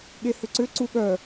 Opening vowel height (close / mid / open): mid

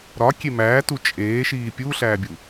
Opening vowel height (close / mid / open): open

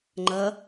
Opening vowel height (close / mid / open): open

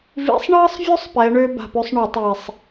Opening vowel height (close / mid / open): close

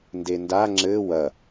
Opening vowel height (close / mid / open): mid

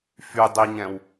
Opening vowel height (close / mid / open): close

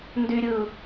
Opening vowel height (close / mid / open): close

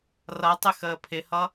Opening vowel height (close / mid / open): mid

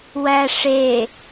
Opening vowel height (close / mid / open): open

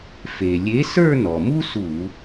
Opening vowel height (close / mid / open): mid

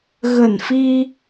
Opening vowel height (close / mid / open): mid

